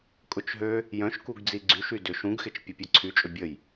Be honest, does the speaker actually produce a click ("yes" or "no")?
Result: yes